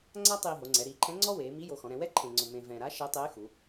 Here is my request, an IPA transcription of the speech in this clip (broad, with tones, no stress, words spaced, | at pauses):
ŋ͡ǀa˥tˤiː˧ ɦo˩˧ŋ͡ǀɛ˩˧ ɾiː˩˧ǃʰɛ̃˧˥ ŋ͡ǀɔ˥weː˩˧mi˧˥jo˩˧ xɔ̃˩˧ɾɛ̃˩˧ wɛ˥ ǃʰẽ˧ŋ͡ǀʊ˧mẽ˧ vɛ̃˧ ɾa˧˥ ʃɛ˧˥tˤeː˧˥xu˩˧